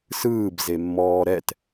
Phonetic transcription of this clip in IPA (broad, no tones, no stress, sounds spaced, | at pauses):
s ɯː b z e mː ɔː ɾ ɛ t